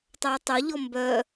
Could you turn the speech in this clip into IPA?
tˤ æ tˤ o ʎ ɔ m b œ

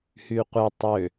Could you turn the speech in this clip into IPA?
h y qʷ e tˤ ø

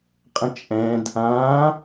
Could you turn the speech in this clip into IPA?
qʼ ə̃ t͡ʃʼ ɛ̃ d | ã

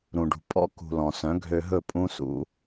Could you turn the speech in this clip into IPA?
ɾ ũ˨ ɖ ṳ˨ pʼ ɔ̰˦ k ṳ˨ l ɔ̃˨ s œ̃˨˦ ɡʱ ø˧ ɦ ɵ˦˨ pʼ ũ˦ s ṵ˦

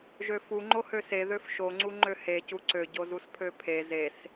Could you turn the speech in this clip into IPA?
ʒ ø f u ŋ͡ǃ o h ø s e ð ø f ʃ o ŋ͡ǀ u ŋ͡ǃ ø h e c u ǀ ø ɟ o z u s pʰ ø pʰ e z e s

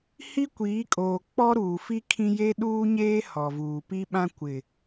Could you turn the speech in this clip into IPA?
h i˦ kʷ iː˨˦ kʼ oː˨ k͡p ɔ˦ ɾ uː˨ f i˦ kʰ ĩ˦ j e˦ ɗ uː˦ ɲ eː˦ h ɔ˨ v uː˨ p i˦ ɓ ã˦ kʷ ɪ˨

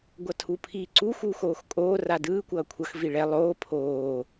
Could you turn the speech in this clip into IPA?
ɡʷ ʌ tʰ u pʰ iː ǀ u x u x oː x kʼ oː r a d ɯː kʷ ʌː kʷʰ ʌ x v i ɭ ɛ lˠ oː pʰ oː

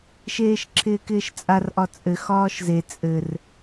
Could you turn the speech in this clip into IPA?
ʃ eː ʃ ǁʰ ɪː k ɪː ʃ t͡sʼ a r ʔ ɒ t͡sʼ ɘ x ɒː ʃ z e t͡sʼ ɘ r

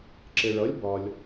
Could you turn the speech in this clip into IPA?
ǁ ɪ˩ ɭ ʌ˩˥ lʲ b ɒ˩ lʲ

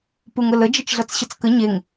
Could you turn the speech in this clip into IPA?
p u ŋ ə l ə d͡ʒ ə t͡ʃ ɮ ʌ t͡s ɕ ʌ t͡s k ə ɲ e ŋ

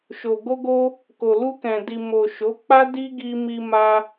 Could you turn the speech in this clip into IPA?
ʃ o˨ ɡ o˧ ɡ o˧ | k o˨ l u˧ k ɛ̃˨ d i˨ m o˨ ʃ o˨˦ k͡p a˦ d i˦ ɡ i˧ m i˧ m a˧

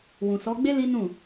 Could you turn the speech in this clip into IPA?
w ũ˨ s ɔ˨˦ ɡ͡b e˦ l i˦ n ũ˦˨

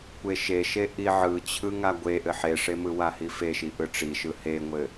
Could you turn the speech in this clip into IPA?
kʷ e ʃ e ʃ e ʔ i ʕ ɯ t͡ɕʰ ɯ ŋ a ɡʷ e ʔ ɘ ħ e ʂ e m ɯ w a h i f e ʃ i ʔ ɯ ʈ͡ʂ i ʃ ɯ h e ŋʷ ɘ

